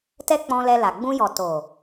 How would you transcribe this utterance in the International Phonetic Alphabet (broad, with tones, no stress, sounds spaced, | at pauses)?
t ɛ˦ k͡p ɔ̃˧ l ɛ˧ l a˨ ɡ͡b ũ˧ j ɔ˨ t o˨